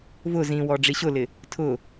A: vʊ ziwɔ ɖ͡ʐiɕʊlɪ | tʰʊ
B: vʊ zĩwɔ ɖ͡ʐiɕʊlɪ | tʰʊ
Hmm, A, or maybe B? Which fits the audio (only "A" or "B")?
B